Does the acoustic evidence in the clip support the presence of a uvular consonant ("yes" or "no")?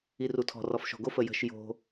no